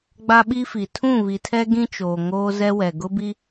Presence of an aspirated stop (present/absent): present